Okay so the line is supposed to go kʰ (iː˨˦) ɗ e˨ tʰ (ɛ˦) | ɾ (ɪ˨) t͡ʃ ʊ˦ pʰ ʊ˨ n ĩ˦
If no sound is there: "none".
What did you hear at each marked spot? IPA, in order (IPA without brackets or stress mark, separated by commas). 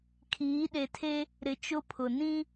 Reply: iː˨˦, e˦, ɪ˨